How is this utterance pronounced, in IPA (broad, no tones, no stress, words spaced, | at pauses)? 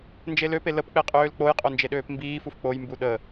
nd͡ʒeløpe ləpk͡peqʼøːl k͡poj qʼond͡ʒeɗøːpmbiː fufk͡poj mbuɗə